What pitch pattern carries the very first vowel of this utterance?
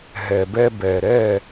low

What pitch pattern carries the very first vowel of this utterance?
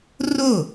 falling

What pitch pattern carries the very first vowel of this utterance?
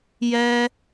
high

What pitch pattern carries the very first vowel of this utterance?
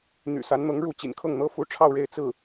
low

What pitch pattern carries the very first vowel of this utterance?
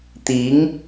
rising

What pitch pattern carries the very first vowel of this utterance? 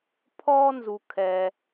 high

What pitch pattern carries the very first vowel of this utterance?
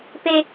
high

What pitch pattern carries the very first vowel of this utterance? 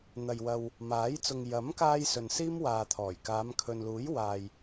low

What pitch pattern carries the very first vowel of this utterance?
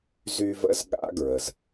high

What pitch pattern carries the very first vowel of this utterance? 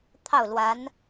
falling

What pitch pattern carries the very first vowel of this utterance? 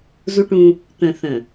high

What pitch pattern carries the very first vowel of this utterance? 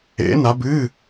rising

